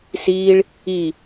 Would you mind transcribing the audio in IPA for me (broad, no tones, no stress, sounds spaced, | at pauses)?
s iː ɭ | i